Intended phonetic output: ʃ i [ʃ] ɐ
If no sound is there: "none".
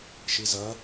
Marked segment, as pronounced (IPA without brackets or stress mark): z